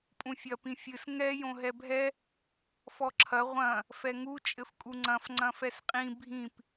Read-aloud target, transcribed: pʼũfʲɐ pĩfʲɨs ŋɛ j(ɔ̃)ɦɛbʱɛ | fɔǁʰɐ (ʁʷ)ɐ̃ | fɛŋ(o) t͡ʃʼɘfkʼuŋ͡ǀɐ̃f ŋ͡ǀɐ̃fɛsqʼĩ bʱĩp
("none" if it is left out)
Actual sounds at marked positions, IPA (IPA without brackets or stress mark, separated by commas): õ, ʁʷ, u